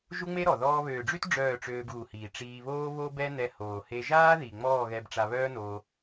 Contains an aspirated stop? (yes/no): no